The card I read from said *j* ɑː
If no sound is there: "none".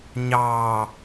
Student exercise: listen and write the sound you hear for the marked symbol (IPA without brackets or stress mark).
ɲ